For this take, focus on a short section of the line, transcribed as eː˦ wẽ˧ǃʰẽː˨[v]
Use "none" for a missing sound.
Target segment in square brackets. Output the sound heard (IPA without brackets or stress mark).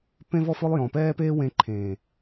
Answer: none